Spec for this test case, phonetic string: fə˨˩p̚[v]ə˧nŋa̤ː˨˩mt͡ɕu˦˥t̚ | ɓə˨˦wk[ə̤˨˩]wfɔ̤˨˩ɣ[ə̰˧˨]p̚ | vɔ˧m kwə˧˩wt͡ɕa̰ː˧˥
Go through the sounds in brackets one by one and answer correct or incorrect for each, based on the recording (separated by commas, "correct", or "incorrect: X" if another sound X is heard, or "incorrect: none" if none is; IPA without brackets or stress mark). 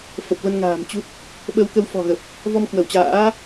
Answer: correct, incorrect: ə˨˦, incorrect: ə˨˩